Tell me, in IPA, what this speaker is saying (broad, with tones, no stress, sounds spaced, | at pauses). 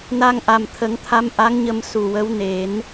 n a˧ ŋ ʔ a˨˩ m t̪ʰ ə˨˩˦ ŋ t̪ʰ a˧˥ m ʔ a˧˥ ŋ ɲ ə˧ m s u˨˩ w ə˧˥ w n e˨˩˦ n